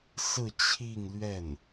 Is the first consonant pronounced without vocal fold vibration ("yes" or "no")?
yes